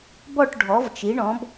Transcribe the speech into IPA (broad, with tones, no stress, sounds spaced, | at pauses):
b ɔ˦˨ ʈ ɖʱ ɔ˩˧ v t͡ʃ i˩˧ ɳ ɔ̃˩˧ b